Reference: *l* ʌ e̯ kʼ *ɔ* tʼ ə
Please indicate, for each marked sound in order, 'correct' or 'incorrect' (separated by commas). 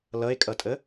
correct, incorrect